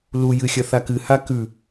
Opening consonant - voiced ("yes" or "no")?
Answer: yes